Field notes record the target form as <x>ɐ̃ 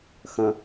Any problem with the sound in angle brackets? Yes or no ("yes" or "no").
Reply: no